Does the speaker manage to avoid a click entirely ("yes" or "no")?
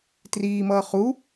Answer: yes